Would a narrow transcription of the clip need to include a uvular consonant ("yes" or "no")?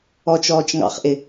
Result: yes